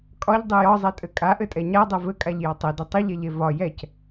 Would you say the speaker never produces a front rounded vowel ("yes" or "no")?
yes